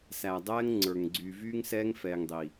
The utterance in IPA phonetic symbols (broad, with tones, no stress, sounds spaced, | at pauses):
s æ˨ dˤ ɛː˦ ŋ ŋ͡ǀ ə˞˨ ŋ ɡ͡ǀ y˨ v yː˦ ŋ s ɛː˦ ŋ f ɛː˨ ŋ dˤ i˨